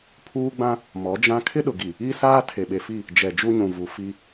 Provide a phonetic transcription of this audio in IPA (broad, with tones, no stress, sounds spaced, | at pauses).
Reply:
pʰ uː˦ ɡ͡b ã˦ | m ɔ˨˦ d͡ʒ ã˦ kʰ ɪ˦ ɗ ʊ˨ ɡ i˨ | i˦ s aː˦ tʰ e˨ ɓ e˨ f i˦˨ | d͡ʒ ɛ˨ d͡ʒ u˦ ɲ ũ˨ v u˨ f i˦